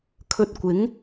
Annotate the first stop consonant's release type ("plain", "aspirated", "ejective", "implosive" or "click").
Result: aspirated